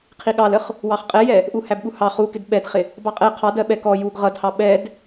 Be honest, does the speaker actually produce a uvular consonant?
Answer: yes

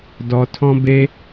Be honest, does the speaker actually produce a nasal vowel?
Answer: yes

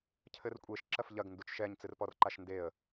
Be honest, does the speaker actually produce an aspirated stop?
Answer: yes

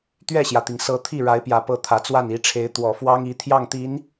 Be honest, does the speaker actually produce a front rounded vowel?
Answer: no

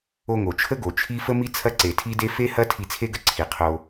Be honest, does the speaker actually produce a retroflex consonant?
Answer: no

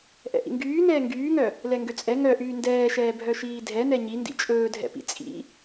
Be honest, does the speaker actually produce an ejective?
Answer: yes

